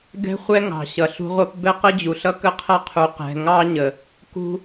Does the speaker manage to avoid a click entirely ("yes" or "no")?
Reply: yes